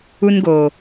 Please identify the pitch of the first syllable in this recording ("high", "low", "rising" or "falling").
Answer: high